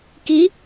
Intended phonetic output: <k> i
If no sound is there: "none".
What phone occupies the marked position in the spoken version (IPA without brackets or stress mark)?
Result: k